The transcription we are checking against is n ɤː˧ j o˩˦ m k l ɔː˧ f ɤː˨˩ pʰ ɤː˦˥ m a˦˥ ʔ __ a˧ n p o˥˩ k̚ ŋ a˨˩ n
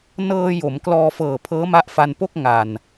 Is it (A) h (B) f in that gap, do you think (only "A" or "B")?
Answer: B